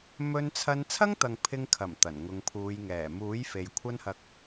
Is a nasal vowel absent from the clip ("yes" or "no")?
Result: yes